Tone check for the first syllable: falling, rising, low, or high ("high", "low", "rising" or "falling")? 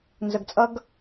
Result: low